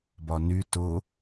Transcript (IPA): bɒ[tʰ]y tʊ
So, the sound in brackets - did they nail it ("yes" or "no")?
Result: no